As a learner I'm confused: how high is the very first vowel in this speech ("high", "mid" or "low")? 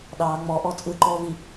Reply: low